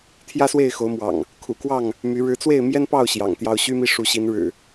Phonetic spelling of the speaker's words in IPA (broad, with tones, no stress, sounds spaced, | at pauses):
t̪ʰ j ä˦ s w e˥˨ ɪ̯ x o˨˦ ʊ̯ m w ɑ̰˨˩ ŋ | kʰ ṵ˨˩ k w ɑ˥˨ ŋ | m y˨˦ ɻ ɻ̩˨˦ t͡s w e˥˨ ɪ̯ m j ɛ˦ n p ɑ˥˨ ʊ̯ ɕ j ɑ̰˨˩ ŋ t̪ j ɑ˦ ʊ̯ ɕ y˦ m i˥˨ ʂ u˨˦ ɕ i˨˦ n ɻ ɻ̩˨˩